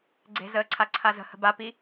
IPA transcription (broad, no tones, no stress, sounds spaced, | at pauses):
ɡ͡ǀ e̤ z əː ǀʰ a ǀʰ a z ə̤ h ə̤ b a p i